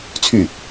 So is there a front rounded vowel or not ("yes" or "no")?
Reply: yes